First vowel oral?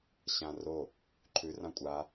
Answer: no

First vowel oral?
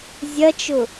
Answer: yes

